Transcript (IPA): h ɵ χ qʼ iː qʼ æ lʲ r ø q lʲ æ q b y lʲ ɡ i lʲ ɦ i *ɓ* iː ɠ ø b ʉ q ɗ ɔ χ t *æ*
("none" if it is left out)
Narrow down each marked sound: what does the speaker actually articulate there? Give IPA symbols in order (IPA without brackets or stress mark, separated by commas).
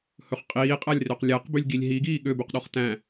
ɡ, æ̃